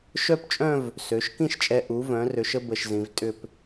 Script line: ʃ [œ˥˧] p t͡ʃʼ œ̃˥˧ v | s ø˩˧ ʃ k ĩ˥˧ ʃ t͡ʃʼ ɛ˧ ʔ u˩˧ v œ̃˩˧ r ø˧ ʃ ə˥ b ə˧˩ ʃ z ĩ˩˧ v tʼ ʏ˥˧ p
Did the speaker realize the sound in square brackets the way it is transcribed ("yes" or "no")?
yes